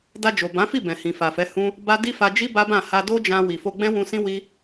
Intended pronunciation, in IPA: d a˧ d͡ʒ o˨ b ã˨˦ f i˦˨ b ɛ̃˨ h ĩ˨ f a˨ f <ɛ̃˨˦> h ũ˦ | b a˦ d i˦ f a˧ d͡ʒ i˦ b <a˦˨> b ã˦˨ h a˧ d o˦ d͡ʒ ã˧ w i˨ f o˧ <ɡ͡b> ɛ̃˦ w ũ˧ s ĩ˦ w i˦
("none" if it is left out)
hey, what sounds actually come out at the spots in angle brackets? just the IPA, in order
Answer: ɛ˨˦, a˦, ɡ͡b

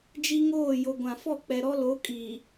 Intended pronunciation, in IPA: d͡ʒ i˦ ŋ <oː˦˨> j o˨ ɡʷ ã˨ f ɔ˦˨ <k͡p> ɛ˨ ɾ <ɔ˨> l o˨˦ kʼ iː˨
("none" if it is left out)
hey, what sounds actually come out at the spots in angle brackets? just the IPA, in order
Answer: oː˦˨, k͡p, ɔ˦

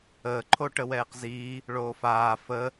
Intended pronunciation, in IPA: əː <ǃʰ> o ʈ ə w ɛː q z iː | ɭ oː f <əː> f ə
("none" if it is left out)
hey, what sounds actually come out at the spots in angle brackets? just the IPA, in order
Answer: ǃʰ, aː

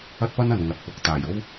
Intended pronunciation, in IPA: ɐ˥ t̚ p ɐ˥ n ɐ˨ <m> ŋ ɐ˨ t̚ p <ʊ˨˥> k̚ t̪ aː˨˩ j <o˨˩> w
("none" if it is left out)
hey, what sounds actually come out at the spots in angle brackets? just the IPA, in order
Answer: n, ʊ˨˥, o˥

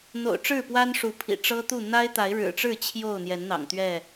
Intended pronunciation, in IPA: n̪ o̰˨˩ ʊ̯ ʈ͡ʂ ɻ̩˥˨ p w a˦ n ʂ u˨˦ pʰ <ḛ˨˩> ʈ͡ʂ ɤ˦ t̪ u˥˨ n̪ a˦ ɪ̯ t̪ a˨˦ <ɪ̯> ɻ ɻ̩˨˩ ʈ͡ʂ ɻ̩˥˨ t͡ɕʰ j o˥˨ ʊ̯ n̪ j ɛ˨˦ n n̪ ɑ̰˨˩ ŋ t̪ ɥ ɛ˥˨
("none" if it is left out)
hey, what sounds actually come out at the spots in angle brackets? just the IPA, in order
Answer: ḭ˨˩, ɪ̯

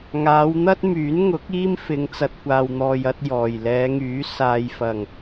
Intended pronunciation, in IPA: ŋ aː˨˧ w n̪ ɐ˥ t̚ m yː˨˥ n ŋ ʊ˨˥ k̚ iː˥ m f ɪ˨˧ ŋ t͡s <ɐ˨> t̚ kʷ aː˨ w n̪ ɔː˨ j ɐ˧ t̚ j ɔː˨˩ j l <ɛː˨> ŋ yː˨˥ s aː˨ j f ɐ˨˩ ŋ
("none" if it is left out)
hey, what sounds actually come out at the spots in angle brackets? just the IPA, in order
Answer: ɐ˨, ɛː˨˧

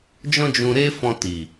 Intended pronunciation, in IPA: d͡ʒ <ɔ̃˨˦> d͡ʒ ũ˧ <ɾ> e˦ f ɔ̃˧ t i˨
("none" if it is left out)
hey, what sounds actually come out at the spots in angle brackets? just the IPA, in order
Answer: ɔ̃˦, ɾ

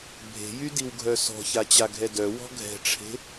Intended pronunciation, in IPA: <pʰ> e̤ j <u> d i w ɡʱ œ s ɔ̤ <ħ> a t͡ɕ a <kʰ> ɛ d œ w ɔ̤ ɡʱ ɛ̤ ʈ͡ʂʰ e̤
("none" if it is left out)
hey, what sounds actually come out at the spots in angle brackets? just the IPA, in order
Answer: bʱ, y, ç, ɡʱ

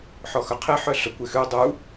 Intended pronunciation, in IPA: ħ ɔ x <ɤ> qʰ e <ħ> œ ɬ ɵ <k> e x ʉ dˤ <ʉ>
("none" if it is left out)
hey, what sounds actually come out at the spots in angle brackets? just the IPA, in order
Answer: ɵ, ħ, kʷ, u

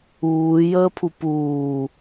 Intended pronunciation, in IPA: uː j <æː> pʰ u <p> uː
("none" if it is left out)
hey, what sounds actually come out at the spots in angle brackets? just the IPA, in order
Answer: əː, p

